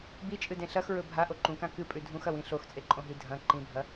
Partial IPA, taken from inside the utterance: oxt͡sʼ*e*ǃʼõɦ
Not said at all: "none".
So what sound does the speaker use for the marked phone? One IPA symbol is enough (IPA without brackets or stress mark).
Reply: e